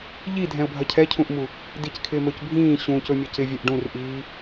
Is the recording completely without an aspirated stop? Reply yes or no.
no